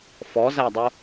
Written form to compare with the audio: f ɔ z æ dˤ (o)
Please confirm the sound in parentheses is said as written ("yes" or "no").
yes